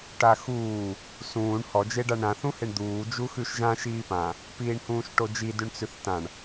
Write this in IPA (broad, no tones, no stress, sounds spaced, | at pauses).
ʈ a x uː | s ũː ɳ h ɔ d͡ʒ e ɖ a ɳ ɾ ã θ ũ h e ɳ d̪ uː d͡ʒ u x ʉ ʃ ʒ ã ʃ iː p ã | p iː ɳ h ũː ʃ ʈ o d͡ʒ i d ʉ ɳ t͡s ʉ θ t ã ɳ